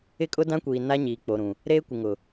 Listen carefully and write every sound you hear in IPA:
ɪ˦kʼʊ˦dã˦kʷiː˨ na˦ɲiː˨k͡po˨ɾũ˨ | ɾeː˦kʷɪ˨ŋʊ˨

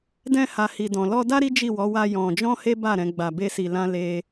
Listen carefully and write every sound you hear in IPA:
dɛ̃˧ha˨ hi˨dɔ̃˨ lɔ˧da˦ ɾi˦d͡ʒi˦˨wɔ˨˦ wa˧ jɔ̃˧ d͡ʒɔ̃˦he˦ba˦˨ ɾɛ̃˨˦ɡ͡ba˧be˦si˧ lã˦ le˦

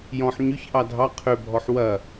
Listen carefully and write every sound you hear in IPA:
jɔ̃ħ ɲʏç ʔɑdʱɑ qʰøbʱɔħ wɐ

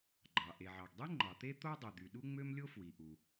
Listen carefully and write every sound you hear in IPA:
ɡ͡ǃɑ˩ ʔe˩ʕɑ˩ɡdˤi˥ ŋ͡ǃɑ˩t̪e˥t̪o˥dˤi˩ d̪y˩ɗu˥ŋ͡mø˥mlʲo˥ fwi˩ʔu˩

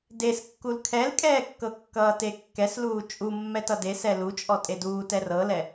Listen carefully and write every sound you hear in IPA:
deskːul kʰɛlkʼɛːkːɤ kːʌːtekːɛsluː t͡ʃʼu mːɛtʌde sɛlut͡ʃʼɔ tʼeduːt ɛrɤlɛ

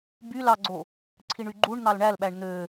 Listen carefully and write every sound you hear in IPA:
by lɑɡ͡ǀo | ǀʰiɳyɡ͡ǃuɳn̪ɑl ɳælɓæɳ n̪ø

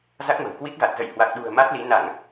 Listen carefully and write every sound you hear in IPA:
za˦˥k̚mə̤˨˩wkwi˦˥k̚ɣa˨˩t̚ zə̰˧˨jhwa˨˩k̚ɗṳ˨˩ə̯ ma˦˥t̚li˨˦ na˧˩˨ŋ

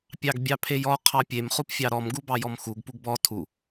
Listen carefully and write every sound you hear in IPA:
pʲɑɡbʲɑpʰejɔ qʰɑpʲem χupfʲɑɾɔm ɡubɑjɔmxuɡ puɡbɔ tʰu

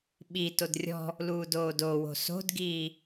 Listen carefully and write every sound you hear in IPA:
ɓitod rʲɔ̤ | luːdoːdowo̤ so̤dɡiː

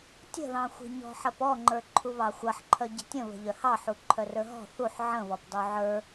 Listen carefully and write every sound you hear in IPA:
tʲə̤ðɑ̃xʷi̤ ɲɔ̤ħɐpɔŋ͡ǃə˞ ǃʰuβɑxʷɐħǃʰœ ɟə̤tʲə̃βə̤ ʎœhɑħu ǃʰœrə˞ɦɔ̤ θuħ ʕə̃ βɔpdˤuʕə˞

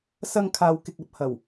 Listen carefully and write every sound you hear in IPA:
sɐ˧ŋ kʰaː˨wkɪ˨k̚ɐ˨˥p̚ hɐ˨˩w

